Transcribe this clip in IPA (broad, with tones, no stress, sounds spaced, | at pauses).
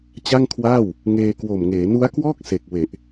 t͡ɕ a˥˩ ŋ kʰ w aː˥˩ w | ŋ eː˧ k w o˨˩ m ŋ eː˩˦ n u˦˥ a̯ k w ɔː˥˩ k̚ s e˨˩ k̚ w e˨˩ ʔ